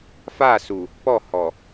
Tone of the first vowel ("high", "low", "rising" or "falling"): falling